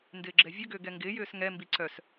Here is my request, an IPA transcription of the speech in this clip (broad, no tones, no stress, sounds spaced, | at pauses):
n d ɪː ɡ͡ǁ ɛ vʲ ə ɡ ʏː ɡ ɛ ŋ ɡ ɪː j ʏː s ŋ ɛ m b i ǀ œ s